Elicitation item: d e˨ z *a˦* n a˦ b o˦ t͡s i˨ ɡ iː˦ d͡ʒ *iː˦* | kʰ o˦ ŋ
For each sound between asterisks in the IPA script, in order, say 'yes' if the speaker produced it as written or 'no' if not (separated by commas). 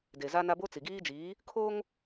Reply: yes, no